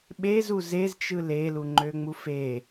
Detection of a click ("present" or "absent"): present